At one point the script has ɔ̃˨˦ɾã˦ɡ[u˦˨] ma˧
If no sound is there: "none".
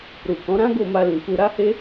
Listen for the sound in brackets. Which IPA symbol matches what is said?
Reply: o˦˨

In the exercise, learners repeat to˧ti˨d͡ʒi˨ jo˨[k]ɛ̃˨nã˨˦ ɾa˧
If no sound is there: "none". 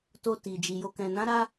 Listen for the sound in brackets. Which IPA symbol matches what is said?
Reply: k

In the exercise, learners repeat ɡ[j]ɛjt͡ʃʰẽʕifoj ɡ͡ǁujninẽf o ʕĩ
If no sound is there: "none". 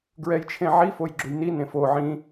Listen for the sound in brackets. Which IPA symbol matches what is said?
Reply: ɹ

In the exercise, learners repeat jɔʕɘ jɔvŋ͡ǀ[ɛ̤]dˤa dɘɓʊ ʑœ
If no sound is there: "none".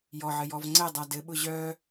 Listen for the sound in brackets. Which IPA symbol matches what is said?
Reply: ɛ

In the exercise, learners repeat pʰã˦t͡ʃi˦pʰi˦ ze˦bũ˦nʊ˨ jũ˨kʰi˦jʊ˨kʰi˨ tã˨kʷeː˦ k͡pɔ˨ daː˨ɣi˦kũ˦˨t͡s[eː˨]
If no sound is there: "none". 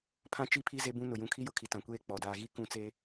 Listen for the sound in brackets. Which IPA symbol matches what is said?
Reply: eː˦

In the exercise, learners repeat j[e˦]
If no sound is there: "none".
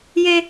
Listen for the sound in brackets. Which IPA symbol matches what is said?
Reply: e˦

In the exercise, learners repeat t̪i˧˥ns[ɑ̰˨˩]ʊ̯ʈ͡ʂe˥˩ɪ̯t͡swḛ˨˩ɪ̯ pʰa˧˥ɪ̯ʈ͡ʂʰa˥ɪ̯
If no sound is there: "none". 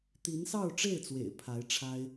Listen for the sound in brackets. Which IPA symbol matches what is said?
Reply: ɑ˥˧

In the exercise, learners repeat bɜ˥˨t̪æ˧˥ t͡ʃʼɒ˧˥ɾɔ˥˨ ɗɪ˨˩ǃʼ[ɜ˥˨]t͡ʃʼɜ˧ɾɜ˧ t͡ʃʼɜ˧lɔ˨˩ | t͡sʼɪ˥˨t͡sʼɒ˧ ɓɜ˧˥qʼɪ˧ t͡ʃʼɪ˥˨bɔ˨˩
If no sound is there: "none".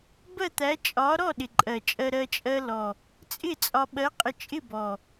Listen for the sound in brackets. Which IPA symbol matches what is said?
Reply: ɜ˨˩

